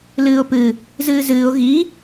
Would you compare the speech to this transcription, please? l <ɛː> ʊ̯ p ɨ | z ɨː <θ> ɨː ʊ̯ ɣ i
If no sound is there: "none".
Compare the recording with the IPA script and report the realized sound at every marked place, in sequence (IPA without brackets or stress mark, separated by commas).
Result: ɨː, z